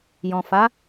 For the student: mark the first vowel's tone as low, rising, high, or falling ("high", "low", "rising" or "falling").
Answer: low